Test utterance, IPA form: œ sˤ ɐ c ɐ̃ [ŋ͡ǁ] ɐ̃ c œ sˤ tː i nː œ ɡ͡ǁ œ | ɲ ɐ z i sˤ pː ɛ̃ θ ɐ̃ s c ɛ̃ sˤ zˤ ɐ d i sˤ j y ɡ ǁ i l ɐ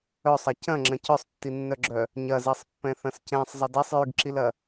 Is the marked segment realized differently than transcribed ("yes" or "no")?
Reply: no